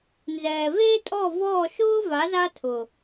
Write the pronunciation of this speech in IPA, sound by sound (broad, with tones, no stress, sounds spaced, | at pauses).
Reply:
n z ɛː˨ v eː˦ tʼ ɔː˦˨ v ɔː˦˨ ʃ ʊː˦ v a˨˦ z a˦ tʰ ʊ˨